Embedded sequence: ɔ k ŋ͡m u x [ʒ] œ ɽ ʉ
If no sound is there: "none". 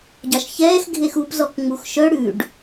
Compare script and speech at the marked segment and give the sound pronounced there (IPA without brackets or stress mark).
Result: ʃ